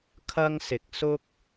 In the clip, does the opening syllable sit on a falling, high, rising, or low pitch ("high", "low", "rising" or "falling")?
high